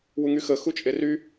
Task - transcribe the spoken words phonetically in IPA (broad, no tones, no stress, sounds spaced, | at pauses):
w u ŋ y x ə x u t͡ʃʼ e r y